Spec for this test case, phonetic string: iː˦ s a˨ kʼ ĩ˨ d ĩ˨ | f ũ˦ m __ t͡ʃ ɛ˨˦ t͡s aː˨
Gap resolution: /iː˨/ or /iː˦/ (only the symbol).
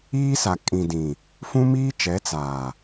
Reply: iː˦